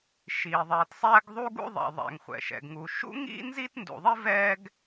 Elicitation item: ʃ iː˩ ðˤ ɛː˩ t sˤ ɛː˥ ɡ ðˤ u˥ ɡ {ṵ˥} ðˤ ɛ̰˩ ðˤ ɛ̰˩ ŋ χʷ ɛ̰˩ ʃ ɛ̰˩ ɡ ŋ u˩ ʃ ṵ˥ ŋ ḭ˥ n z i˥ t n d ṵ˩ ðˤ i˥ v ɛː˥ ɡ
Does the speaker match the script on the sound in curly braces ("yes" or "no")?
yes